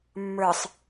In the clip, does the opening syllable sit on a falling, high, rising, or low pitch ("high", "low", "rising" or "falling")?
low